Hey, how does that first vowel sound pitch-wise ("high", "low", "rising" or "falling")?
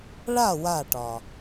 falling